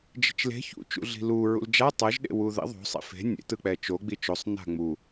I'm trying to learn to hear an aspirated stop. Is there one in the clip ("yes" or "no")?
no